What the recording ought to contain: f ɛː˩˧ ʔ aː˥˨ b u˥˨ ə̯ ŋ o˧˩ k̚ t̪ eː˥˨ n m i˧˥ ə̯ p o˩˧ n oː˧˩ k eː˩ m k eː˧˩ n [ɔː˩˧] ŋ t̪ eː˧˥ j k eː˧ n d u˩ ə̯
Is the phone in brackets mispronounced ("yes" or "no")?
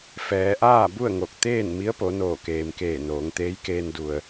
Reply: yes